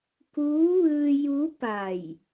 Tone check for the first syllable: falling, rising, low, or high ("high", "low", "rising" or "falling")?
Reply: rising